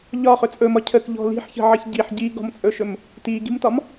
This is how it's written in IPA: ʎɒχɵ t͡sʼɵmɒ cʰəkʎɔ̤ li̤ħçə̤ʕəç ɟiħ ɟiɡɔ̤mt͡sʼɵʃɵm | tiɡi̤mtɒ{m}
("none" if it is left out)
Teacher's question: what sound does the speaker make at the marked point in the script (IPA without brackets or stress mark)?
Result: m